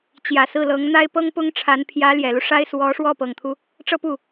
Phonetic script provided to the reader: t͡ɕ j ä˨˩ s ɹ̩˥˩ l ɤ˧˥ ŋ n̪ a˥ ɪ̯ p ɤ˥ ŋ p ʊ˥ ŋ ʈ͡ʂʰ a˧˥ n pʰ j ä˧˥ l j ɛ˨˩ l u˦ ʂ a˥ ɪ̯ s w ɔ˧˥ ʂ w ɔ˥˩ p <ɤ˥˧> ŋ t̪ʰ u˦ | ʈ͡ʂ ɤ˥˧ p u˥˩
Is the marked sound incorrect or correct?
incorrect